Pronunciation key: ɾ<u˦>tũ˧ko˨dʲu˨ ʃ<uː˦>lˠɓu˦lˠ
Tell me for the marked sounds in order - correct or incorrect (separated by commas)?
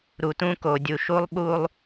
incorrect, incorrect